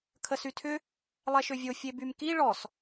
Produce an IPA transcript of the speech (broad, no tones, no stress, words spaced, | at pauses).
kʰəsytʰʏ | lˠɛʃøvʲo fʲebymki ɭɔs